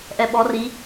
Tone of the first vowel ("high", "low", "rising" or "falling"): low